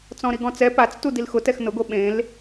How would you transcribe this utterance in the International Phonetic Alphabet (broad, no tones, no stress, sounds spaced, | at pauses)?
t͡s ɔ̃ ɾ i ɡ ɔ̃ t͡s ɛ p a t͡s t u d i l x ʊ t ɛ x n ʊ ɡ o ɓ ẽ l